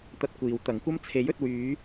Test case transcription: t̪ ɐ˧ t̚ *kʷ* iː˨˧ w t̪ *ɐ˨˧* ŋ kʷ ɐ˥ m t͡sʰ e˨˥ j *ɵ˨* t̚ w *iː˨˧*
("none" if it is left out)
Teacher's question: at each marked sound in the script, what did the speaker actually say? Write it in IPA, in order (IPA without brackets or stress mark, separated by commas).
kʷ, ɐ˨˥, ɵ˨, yː˨˧